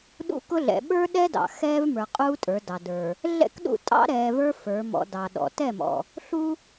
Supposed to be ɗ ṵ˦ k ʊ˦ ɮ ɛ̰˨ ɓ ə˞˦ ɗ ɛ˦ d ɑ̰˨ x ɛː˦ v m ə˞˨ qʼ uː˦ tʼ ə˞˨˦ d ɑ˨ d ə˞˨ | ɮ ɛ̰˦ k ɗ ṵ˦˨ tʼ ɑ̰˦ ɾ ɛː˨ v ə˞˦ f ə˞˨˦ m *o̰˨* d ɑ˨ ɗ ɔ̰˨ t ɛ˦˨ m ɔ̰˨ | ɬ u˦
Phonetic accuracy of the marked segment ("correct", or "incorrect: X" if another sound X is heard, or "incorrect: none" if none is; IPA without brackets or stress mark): incorrect: ɔ̰˨